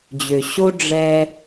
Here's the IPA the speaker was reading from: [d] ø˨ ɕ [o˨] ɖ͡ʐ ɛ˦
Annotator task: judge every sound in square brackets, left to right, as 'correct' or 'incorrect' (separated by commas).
incorrect, incorrect